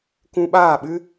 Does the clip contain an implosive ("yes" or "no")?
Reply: yes